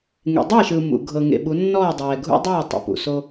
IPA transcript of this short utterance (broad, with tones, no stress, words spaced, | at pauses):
ŋḛ˨dˤɛ˦˨ʃɯ˨ mṵ˨ ɡʱɤ˨ ŋḛ˨ɓu˨˦nːɔː˦˨dˤɛː˨ ɡʱṵ˦dˤuː˦˨tˤḛ˨ pṵ˨so˦